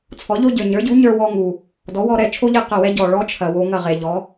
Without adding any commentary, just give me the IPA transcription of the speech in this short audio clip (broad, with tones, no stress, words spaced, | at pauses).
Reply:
t͡sʰɔ˩˥ʎo˥ɟə˞˩ ɲə˞˩˥ɟu˩˥ɲə˞˧wɔ˧ ŋu˩ | dɔ˩˥wɔ˧ɾɛ˥˩ t͡ʃʰo˥ʎe˥˩ qə˥˩wɛ˥ɟɔ˩ɭɔ˥ t͡ʃʰɐ˩ wo˧ ŋɐ˥˩ʁe˩ʎɔ˩˥